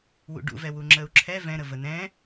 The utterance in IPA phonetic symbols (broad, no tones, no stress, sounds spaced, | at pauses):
w ṵ ɖ ṵ v ɛ w u ŋ͡ǁ ə u̯ ǁʰ ɛ v ɛ̃ ɾ ə v ə n ɛ̃